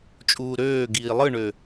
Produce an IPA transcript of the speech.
t͡ʃʼ uː ɾ øː ɡ iː lˠ ɯ ɳ ø

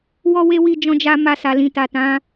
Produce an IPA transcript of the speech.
w ɔ˦ w e˦ w i˦˨ d͡ʒ ɔ̃˧ d͡ʒ a˧ m a˧ s a˨ l ĩ˨ t a˨ t ã˨˦

